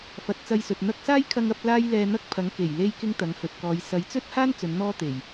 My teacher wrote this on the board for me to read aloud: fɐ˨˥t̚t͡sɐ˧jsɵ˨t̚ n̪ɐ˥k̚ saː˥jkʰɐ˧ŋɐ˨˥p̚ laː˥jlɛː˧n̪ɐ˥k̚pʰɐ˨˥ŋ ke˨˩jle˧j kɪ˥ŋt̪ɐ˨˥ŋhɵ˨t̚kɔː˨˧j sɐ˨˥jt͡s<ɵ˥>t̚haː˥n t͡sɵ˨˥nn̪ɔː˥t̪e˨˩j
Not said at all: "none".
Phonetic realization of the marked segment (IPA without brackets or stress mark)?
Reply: ɵ˥